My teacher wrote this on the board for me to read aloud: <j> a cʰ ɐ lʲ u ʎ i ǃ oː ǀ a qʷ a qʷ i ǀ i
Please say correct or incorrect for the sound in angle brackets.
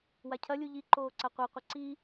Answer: incorrect